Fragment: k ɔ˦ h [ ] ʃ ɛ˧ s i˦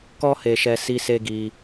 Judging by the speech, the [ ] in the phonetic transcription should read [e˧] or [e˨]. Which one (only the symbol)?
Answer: e˧